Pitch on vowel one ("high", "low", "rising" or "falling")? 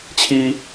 high